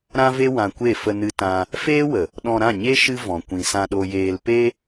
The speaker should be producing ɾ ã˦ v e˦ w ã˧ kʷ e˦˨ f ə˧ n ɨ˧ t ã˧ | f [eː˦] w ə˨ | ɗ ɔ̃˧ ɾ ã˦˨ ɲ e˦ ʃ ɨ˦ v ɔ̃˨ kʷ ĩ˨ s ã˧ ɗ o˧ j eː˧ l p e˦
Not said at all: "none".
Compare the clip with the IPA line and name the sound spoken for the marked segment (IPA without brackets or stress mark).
eː˦